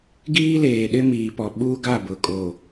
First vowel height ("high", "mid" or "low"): high